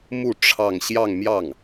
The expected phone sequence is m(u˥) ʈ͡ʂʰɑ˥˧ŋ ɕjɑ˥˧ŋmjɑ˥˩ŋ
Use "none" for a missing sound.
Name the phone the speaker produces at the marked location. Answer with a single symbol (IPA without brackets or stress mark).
u˥˧